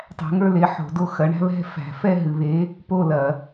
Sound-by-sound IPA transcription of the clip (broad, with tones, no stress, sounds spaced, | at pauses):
tˤ æ̤˨˥ ŋ ə˞˦˨ l e˨˥ ħ o̤˨˩˦ d o˦˨ x ɐ˨˥ ɳ æ̤˦ β ɛ̤˦˨ f æ̤˨˩˦ f ɛ˦˨ ɦ ɨ˨ β e˨˥ | p o˦˨ l ɐ˨˩˦